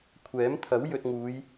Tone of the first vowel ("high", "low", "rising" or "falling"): rising